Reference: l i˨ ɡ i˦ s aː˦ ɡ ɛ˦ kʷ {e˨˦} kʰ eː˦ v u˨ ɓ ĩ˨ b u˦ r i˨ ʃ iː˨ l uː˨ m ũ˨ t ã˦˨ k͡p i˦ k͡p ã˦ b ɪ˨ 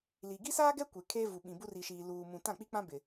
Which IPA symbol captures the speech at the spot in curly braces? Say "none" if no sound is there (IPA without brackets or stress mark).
e˨